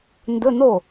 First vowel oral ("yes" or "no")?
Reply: yes